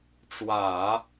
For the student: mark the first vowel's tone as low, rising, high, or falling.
low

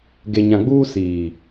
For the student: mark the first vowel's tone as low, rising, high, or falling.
low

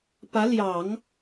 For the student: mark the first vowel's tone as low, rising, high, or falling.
rising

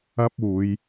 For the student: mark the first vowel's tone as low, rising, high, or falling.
high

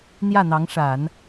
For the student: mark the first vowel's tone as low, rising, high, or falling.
falling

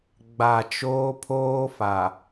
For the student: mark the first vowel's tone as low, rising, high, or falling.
low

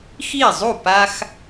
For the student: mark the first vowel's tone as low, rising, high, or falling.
falling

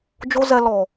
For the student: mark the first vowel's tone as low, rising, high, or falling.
high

